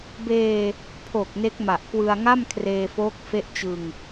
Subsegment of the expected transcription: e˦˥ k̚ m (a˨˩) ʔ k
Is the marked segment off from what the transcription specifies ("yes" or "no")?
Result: no